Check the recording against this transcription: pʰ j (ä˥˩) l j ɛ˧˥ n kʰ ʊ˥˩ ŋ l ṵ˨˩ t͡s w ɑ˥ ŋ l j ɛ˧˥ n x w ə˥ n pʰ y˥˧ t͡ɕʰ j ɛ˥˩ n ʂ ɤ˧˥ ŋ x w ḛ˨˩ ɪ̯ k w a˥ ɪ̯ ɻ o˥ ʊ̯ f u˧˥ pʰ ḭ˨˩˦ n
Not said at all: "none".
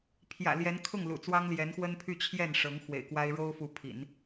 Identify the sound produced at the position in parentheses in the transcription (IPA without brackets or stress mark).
ä̰˨˩